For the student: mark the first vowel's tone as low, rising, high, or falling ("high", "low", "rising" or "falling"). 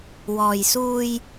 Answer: low